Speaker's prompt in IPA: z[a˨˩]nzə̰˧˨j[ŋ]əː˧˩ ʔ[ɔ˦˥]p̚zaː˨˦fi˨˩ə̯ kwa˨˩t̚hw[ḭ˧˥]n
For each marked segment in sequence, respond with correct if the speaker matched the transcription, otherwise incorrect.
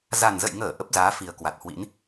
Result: correct, correct, incorrect: ə˦˥, correct

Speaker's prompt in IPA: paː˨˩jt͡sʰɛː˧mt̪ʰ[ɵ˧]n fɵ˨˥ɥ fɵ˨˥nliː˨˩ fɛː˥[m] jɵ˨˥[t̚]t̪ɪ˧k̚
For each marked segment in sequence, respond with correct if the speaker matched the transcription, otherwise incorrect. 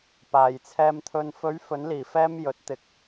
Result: correct, correct, correct

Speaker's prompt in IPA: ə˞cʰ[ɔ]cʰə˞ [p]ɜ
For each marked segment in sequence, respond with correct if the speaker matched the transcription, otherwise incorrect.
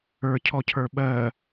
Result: correct, incorrect: ɓ

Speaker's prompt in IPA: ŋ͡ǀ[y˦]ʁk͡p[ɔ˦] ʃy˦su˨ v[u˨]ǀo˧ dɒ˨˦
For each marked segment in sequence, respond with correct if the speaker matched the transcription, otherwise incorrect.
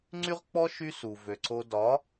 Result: correct, correct, incorrect: ø˨

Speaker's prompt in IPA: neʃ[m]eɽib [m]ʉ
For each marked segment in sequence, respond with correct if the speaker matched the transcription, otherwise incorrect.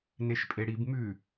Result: incorrect: pʼ, correct

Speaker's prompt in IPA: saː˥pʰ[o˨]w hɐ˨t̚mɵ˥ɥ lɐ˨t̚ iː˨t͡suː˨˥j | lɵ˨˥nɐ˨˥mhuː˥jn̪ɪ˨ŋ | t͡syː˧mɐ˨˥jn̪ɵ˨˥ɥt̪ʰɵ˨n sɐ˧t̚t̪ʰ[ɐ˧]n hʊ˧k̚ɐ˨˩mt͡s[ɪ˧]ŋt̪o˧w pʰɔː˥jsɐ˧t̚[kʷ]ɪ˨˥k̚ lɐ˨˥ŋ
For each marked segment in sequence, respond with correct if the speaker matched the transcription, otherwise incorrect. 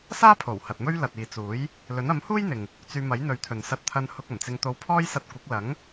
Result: incorrect: o˨˩, correct, correct, correct

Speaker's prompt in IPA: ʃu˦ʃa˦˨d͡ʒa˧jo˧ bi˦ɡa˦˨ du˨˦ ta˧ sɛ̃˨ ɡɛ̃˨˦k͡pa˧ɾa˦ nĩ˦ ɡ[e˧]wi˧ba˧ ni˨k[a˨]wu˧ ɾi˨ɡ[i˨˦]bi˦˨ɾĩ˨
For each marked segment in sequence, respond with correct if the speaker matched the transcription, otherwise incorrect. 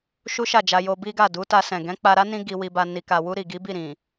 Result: incorrect: i˧, correct, correct

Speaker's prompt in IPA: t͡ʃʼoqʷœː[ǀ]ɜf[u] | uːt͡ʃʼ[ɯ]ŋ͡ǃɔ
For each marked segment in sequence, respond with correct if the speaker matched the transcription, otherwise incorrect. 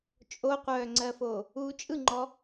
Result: incorrect: ŋ͡ǀ, incorrect: o, correct

